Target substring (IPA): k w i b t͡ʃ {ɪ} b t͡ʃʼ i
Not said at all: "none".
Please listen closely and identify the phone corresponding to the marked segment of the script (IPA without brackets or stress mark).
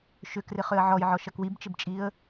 ɪ